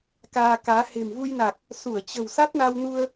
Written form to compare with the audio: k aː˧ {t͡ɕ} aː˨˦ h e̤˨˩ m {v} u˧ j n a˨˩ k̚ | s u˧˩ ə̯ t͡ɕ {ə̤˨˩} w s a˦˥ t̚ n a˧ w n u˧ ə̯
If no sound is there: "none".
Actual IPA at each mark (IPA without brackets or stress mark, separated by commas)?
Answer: k, v, ə̤˨˩